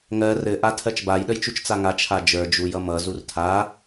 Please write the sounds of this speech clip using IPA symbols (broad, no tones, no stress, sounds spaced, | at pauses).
ŋ ɜ r ɘ ʔ a tʰ ɜ t͡ʃ b a j ɗ ə j t͡ʃ u t͡ʃ t͡s a ŋ a t͡ʃʰ a d͡ʒ ə˞ d͡ʒ u j ʌ m ʌ z u r tʰ a